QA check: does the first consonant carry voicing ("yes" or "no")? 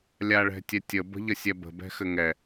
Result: yes